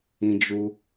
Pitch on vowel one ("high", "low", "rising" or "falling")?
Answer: high